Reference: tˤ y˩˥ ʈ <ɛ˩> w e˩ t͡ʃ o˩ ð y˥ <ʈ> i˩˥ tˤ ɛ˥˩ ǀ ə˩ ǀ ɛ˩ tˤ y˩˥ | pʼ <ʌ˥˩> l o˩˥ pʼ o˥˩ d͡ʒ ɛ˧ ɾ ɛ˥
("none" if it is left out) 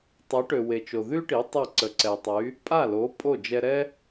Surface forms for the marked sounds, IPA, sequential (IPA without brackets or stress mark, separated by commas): ø˩, ʈ, a˥˩